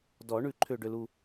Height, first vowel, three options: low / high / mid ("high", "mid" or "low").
mid